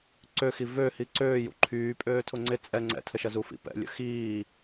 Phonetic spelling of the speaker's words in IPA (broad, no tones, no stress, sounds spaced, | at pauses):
ǀ ø x i v ø h i ǀ øː j ṵ ǃʰ yː pʼ øː tʰ ʊ ŋ͡ǀ ɪ t͡sʼ ɛ ŋ͡ǀ ɛ̰ tʰ ə ʃ ɐ z u f ḭ p ɛ̰ lʲ ə̰ x iː